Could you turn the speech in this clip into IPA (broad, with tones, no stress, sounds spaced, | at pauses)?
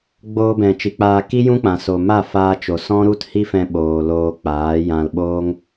ɡ͡b oː˧ b ɛ̃˨ t͡ʃ i˨ k͡p aː˧ k i˦ j ũ˦ k͡p ã˨ s o˨ m a˦˨ f aː˧ t͡ʃ o˨ s ɔ̃˦ ɾ u˦ t h i˦ f ɛ̃˧ ɓ oː˨ l oː˧ k͡p aː˨˦ j ã˧ l ɓ oː˦ ŋ